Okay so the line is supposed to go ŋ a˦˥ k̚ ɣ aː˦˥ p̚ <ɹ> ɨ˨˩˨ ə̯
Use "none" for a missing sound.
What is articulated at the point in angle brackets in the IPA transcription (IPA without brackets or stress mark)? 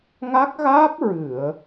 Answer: ɹ